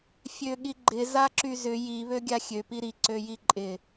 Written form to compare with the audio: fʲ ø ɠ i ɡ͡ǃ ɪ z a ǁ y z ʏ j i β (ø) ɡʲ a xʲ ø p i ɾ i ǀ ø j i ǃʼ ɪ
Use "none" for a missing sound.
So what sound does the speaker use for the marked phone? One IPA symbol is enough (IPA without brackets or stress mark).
ø